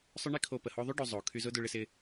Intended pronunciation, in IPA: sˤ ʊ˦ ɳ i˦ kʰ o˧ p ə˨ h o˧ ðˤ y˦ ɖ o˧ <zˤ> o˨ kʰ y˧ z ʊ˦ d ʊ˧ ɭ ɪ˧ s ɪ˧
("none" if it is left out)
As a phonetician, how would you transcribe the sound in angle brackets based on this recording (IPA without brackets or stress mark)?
zˤ